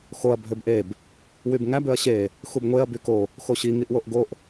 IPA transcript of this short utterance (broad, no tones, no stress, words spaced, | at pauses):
xoɐ̯ bʱøbʔeb | wybŋæ bøɐ̯ɕe | xubŋʷeɐ̯ byko | xoɕi ŋiʔwoʔɡoʔ